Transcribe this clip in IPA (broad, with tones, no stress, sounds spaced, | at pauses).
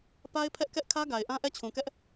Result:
p a˦ ɪ̯ pʰ ɛ˦ ʔ k ɛ˦ ʔ kʰ ä˦ ɡ a˨ ɪ̯ ʔ ã˦ ʔ ɛ˦˨ t͡ɕʰ ũ˨ k ɛ˦ ʔ